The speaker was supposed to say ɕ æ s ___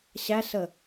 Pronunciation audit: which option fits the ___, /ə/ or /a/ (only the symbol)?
ə